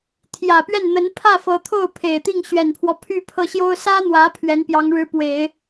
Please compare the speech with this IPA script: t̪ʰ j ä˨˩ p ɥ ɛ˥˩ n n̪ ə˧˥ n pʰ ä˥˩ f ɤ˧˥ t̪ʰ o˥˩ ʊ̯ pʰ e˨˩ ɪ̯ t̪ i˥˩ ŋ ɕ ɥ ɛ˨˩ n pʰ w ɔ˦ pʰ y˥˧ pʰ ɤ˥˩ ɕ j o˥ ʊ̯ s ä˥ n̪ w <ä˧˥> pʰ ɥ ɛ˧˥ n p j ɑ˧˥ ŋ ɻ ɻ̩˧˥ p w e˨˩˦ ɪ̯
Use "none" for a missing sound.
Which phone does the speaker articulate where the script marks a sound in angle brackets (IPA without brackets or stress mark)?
ä˧˥